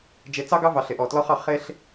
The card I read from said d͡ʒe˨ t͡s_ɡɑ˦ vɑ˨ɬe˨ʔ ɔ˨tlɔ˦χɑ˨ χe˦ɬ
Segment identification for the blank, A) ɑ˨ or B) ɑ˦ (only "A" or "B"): B